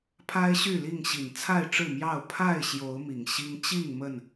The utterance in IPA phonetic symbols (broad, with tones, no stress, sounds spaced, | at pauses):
pʰ a˦ ɪ̯ ɕ y˥˨ l i˥˨ ŋ ɕ i˨˩ n t͡sʰ a˥˨ ɪ̯ ʈ͡ʂ ɻ̩˥˨ m j ɑ˥˨ ʊ̯ pʰ a˥˨ ɪ̯ ɕ j o˨˦ ʊ̯ m i˨˩ ŋ ɕ i˦ ŋ t͡ɕ i˥˨ ŋ m ə˥˨ n